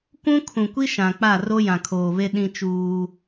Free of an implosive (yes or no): no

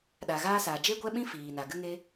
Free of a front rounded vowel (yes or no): yes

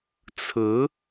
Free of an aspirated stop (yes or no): no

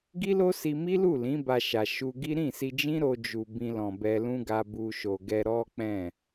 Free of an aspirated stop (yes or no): yes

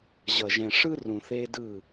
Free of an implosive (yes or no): yes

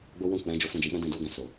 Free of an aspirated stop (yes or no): yes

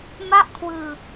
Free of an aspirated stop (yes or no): no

